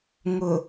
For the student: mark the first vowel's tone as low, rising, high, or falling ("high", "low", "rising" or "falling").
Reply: low